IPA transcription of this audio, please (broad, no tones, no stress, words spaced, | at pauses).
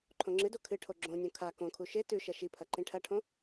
ǃʰõŋ͡ǁɨdo kʰɨʈʰo ɡ͡ǁõnʲõ kʰa kõkʰu ʃe tʉʃɐ ʃipʰɐ ǃĩʈʰɐʈʰõ